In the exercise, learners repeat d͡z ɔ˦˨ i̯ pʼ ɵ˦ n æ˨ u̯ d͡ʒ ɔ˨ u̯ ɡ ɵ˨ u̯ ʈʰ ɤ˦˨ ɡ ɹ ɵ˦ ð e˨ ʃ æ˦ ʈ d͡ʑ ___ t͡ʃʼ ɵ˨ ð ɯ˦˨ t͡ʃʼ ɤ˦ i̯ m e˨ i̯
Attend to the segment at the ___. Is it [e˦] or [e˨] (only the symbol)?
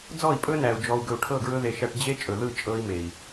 e˦